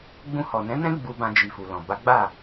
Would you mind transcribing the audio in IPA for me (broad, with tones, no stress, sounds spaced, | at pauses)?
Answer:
ɡ͡b ũ˧ h ɔ˨ n ɛ̃˨˦ n ɛ̃˦ ɡ͡b u˧ b ã˧ d͡ʒ i˨ f u˨ l ɔ̃˨ b a˨˦ ɡ͡b a˦˨